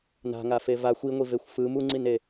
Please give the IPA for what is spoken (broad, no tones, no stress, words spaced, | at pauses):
na̤ŋafe vaxʷ iŋʷivexʷ fɯm uŋ͡ǀine